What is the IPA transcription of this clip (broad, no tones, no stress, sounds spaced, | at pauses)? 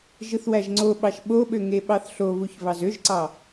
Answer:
ʒ ɯ θ w æ ʒ ŋ͡ǀ o ɓ ɑ ʃ ɓ o ɓ ø ŋ e ɓ ɑ θ ɬ o β u ç β ɑ z ø ʒ ǀ ɑ